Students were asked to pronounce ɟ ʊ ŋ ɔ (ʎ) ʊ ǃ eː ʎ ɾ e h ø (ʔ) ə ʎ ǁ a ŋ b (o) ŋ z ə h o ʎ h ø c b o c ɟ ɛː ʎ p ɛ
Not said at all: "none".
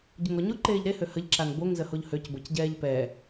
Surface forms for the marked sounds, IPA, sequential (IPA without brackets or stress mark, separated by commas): ɲ, h, o